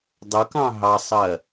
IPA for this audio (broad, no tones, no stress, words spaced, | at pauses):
dˤʊkɑ̃ ɦɑsˤɜ